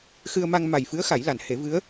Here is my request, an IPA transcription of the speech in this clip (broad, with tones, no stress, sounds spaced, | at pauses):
x ɨ˧ ə̯ m a˧ ŋ m a˨˩ j f ɨ˧˥ ə̯ x a˨˩˦ j l a˨˩˨ n h e˨˩˦ v ɨ˧˥ ə̯